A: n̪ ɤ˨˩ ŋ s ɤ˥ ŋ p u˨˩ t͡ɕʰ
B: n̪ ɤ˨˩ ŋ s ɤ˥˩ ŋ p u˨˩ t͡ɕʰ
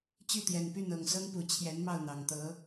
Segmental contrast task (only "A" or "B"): A